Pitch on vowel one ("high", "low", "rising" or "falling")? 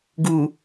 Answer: low